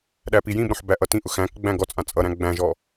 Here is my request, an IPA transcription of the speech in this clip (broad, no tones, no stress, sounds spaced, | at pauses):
ɗ æ p i j ĩ b ɾ õ ħ b æ ʔ ʌ t ĩ ʔ ʊ x æ̃ k ɡ͡b æ̃ ɡ ɔ t͡sʼ ã t͡sʼ ʌ ɾ æ̃ ɡ͡b æ̃ ʒ ɔ